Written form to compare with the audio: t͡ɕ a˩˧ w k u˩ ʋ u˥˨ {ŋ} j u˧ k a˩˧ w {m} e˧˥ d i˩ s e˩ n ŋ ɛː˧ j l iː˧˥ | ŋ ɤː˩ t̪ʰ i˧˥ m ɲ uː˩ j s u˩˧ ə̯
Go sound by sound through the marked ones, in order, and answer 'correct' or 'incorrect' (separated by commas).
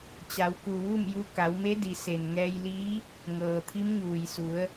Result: incorrect, correct